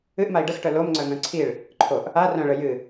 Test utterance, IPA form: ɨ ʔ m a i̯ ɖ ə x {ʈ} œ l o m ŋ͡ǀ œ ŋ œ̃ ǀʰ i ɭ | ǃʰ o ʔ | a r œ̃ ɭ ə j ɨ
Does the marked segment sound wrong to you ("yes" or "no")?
no